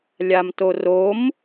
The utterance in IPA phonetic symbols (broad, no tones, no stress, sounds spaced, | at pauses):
lʲ a m t o r o m